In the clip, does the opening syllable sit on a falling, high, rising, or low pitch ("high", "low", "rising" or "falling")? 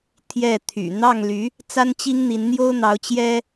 falling